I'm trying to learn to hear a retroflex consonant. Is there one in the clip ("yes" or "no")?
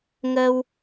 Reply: no